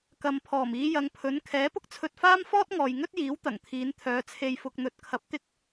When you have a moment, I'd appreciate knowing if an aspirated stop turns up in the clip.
yes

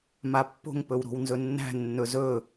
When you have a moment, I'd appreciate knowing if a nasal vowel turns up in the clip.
no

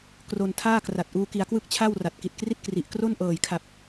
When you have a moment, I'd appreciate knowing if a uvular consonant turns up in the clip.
no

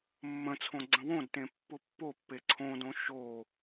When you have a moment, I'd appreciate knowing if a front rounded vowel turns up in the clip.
no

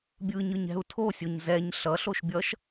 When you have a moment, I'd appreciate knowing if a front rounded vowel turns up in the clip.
no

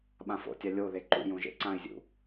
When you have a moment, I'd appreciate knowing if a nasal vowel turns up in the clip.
yes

